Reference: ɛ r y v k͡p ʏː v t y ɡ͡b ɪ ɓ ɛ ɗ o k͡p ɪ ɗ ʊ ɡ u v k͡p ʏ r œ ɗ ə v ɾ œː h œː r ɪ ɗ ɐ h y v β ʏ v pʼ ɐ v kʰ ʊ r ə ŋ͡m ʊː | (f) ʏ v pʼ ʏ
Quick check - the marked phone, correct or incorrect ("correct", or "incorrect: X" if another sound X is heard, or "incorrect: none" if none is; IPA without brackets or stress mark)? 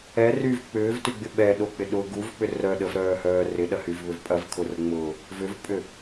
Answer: incorrect: v